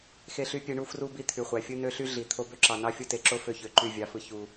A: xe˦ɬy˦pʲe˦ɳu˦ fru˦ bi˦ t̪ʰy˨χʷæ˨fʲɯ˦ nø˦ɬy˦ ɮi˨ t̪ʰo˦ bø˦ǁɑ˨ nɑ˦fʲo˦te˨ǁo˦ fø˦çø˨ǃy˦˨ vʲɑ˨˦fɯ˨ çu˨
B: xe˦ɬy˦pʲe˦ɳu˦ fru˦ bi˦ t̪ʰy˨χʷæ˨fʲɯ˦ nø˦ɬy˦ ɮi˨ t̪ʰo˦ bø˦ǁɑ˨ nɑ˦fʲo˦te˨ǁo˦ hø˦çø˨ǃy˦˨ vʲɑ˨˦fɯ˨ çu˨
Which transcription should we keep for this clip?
A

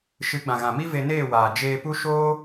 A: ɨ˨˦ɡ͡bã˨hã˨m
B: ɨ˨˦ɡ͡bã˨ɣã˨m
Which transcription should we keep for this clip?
B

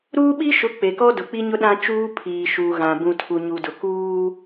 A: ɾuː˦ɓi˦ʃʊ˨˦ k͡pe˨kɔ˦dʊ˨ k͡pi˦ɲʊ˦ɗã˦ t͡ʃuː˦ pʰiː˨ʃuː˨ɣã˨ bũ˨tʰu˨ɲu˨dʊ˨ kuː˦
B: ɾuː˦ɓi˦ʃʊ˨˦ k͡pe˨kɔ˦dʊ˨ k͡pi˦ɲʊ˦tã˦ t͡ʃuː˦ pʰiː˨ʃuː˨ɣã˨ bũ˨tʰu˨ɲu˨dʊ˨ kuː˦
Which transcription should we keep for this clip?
A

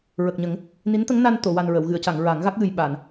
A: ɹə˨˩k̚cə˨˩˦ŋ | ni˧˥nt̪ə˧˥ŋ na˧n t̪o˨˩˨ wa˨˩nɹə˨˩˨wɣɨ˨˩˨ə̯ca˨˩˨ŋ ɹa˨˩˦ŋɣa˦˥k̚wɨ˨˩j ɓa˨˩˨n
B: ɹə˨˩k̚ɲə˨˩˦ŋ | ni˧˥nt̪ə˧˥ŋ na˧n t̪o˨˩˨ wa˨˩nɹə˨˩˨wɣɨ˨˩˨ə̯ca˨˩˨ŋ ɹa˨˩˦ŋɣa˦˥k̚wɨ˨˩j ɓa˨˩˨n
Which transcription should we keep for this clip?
B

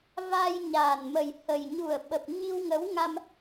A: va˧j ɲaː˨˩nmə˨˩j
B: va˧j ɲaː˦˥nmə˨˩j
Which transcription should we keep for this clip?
A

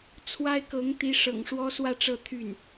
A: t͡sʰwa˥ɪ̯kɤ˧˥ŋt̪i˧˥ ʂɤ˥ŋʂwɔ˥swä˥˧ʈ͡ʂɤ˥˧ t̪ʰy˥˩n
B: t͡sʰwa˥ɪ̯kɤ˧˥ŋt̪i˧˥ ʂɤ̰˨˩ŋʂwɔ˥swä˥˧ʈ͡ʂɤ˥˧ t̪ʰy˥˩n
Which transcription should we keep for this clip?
B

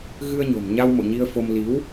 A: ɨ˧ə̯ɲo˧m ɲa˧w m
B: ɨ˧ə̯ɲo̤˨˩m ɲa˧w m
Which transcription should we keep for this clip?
B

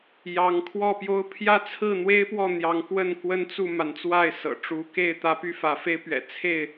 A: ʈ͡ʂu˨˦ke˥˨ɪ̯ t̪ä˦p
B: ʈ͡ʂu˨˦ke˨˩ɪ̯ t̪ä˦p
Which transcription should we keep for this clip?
A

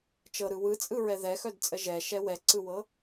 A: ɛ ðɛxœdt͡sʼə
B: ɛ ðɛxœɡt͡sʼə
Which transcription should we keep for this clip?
A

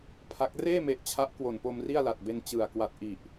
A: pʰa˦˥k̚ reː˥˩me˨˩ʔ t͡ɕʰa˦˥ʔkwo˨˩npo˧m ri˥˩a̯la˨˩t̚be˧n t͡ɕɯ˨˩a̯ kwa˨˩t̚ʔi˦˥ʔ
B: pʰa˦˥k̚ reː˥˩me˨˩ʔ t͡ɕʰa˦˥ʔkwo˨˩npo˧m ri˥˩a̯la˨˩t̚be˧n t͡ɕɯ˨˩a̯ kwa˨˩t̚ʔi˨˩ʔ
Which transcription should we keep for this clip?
B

